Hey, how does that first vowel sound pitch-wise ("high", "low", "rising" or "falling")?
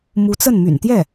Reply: rising